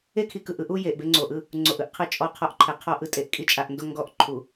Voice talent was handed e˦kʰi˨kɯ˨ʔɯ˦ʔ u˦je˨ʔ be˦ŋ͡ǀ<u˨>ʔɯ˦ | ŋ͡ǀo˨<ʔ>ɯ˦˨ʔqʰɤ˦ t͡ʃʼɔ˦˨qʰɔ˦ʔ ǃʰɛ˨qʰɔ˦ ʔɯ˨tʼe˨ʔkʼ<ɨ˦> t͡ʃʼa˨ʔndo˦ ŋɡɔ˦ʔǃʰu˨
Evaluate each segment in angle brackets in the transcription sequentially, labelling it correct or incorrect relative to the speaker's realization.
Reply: incorrect: o˨, correct, incorrect: i˦

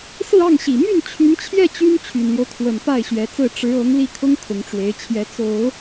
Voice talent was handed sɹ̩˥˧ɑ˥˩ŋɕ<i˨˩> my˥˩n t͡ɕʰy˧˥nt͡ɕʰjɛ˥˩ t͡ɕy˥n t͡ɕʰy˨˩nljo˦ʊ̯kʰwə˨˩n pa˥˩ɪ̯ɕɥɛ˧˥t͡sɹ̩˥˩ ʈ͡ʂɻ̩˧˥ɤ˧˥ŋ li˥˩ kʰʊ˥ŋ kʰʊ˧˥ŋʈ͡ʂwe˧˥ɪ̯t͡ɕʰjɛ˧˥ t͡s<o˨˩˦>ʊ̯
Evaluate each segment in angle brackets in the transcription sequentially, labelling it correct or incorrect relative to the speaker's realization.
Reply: correct, correct

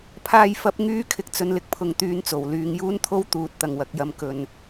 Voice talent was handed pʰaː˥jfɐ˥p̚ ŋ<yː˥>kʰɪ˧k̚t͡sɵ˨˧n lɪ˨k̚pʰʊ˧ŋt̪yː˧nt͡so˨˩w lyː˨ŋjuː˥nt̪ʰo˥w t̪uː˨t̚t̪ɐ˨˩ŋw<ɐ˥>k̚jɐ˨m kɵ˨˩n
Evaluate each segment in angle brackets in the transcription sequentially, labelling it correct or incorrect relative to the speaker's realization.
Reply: correct, incorrect: ɐ˨

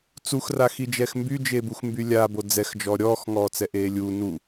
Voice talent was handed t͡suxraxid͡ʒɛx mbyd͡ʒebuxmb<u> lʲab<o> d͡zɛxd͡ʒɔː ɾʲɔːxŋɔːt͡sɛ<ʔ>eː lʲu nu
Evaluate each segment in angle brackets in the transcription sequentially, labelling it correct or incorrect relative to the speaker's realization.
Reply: incorrect: y, correct, correct

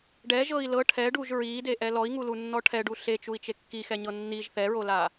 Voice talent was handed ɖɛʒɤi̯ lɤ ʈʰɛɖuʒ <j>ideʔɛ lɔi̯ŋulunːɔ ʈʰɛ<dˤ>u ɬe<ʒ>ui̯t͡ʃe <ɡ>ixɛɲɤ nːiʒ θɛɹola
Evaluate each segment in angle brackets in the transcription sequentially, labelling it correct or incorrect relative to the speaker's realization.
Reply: incorrect: ɹ, incorrect: ɖ, incorrect: t͡ʃ, incorrect: kː

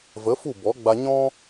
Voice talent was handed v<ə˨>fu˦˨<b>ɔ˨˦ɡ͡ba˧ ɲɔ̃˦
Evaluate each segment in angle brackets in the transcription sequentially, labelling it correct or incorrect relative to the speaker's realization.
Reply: incorrect: ə˨˦, correct

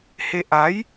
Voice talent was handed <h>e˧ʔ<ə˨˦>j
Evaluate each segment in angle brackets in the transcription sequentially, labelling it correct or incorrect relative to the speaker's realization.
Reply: correct, incorrect: a˨˦

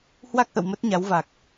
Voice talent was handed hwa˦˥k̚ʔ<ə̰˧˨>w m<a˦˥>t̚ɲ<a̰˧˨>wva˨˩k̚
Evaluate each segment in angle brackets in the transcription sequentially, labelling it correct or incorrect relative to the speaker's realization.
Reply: correct, incorrect: ə˦˥, incorrect: a˨˦

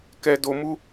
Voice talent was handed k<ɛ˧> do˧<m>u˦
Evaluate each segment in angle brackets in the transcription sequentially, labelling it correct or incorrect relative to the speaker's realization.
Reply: correct, correct

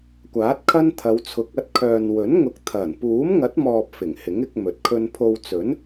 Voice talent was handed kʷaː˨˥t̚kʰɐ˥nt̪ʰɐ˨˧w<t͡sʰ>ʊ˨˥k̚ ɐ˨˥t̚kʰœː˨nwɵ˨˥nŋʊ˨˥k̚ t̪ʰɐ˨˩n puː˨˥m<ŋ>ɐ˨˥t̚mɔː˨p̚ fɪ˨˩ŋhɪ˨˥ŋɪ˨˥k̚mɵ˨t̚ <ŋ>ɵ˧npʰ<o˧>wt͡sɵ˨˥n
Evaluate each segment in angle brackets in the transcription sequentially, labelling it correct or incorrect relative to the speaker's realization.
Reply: correct, correct, incorrect: kʰ, correct

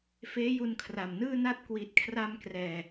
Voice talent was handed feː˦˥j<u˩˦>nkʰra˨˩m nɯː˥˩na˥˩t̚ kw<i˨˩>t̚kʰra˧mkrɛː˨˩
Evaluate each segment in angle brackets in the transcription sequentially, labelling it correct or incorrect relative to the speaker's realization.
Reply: incorrect: u˧, correct

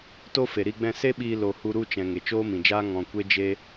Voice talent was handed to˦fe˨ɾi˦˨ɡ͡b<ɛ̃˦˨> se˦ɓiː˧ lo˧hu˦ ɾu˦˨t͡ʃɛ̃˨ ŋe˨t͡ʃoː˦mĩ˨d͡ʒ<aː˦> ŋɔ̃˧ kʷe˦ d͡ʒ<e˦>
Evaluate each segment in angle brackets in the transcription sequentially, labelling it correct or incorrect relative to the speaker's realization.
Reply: correct, correct, correct

